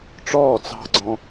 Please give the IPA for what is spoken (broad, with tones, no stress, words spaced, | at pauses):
ʈ͡ʂɔː˦˨t͡sɑ̤˦ɡ͡ǀɔ̃˦